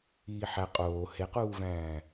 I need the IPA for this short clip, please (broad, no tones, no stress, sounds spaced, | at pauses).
iː ħ æ qʼ oː h e q uː v æ̃ː